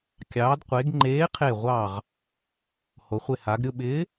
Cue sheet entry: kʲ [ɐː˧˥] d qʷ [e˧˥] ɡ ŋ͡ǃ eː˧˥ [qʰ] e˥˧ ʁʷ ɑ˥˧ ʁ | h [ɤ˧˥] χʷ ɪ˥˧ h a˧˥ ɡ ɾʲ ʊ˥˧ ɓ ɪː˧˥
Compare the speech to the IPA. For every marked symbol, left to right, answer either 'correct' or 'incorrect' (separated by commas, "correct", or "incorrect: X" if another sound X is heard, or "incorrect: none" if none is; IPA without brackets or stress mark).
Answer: incorrect: ɑː˧˥, correct, correct, incorrect: o˧˥